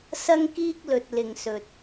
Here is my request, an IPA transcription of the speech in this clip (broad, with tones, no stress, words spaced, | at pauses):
sɐ˥ŋkiː˥k̚lɵ˧t̚ lɪ˧ŋsɵ˧t̚